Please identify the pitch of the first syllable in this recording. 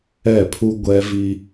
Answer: falling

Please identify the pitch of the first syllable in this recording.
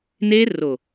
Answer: high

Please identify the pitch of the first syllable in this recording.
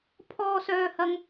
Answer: high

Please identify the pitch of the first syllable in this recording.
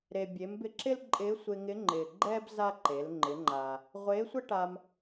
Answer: low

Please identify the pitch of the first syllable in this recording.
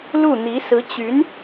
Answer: falling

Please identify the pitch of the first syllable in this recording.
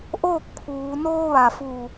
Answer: falling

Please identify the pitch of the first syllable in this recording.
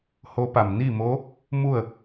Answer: rising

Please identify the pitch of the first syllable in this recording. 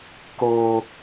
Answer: high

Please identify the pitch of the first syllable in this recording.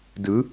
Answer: rising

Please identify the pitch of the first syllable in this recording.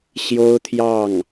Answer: high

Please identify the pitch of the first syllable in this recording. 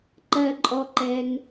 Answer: low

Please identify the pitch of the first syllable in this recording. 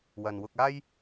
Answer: low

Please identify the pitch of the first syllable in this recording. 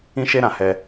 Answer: high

